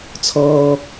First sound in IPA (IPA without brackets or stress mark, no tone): t͡sʰ